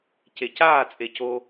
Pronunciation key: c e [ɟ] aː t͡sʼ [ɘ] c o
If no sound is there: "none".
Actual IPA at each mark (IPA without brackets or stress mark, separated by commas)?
c, e